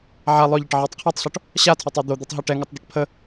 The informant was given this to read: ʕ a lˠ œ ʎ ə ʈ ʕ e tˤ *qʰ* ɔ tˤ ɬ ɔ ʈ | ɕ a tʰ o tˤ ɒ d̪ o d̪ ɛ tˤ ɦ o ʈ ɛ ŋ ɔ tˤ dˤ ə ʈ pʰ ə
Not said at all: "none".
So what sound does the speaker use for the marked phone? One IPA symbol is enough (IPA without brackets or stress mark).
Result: qʰ